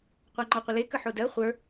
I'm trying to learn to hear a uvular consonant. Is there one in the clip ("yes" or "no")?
yes